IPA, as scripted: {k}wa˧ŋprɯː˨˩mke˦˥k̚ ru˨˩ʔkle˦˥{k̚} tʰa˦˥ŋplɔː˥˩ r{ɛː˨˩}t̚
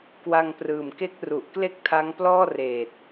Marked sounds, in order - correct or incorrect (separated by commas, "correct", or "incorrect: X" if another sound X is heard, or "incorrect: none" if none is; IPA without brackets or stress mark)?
correct, correct, incorrect: eː˨˩